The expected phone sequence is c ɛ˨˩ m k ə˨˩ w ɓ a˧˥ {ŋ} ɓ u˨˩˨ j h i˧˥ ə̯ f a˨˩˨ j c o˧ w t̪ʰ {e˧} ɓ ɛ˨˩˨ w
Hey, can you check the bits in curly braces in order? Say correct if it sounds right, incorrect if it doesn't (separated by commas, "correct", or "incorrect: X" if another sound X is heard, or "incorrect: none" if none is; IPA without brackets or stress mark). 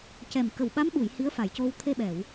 incorrect: m, correct